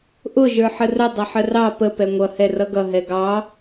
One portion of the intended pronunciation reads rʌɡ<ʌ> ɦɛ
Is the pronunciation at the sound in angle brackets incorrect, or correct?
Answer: correct